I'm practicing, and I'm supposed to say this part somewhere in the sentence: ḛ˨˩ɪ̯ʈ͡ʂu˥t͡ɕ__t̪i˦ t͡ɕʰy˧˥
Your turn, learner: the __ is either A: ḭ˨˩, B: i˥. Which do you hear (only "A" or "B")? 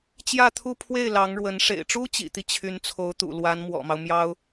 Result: A